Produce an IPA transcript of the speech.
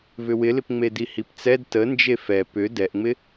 v ʏ w ɪ l ɪ p ŋ͡m e d i h i p t͡s ɛ d t ə n d͡ʒ e f ɛ p ʏ d ɛ ʔ ŋ͡m ɪ

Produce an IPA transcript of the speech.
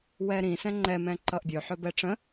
w ɛ ɾ ĩ s ɛ̃ ŋ͡ǃ ɛ m ɛ̃ ǃ ʌ ʔ bʲ ɵ ħ ɵ b ɛ ʈ͡ʂ ə̃

